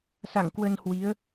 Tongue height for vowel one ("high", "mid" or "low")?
low